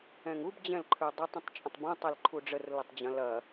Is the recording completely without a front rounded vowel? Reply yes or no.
yes